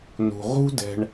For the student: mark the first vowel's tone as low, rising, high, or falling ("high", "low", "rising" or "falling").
low